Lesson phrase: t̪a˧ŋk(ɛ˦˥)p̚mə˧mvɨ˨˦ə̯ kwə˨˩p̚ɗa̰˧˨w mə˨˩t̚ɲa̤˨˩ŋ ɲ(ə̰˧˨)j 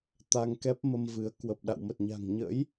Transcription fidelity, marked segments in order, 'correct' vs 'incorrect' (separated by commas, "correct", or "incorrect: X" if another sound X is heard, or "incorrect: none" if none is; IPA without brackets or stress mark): correct, incorrect: ə̰˧˥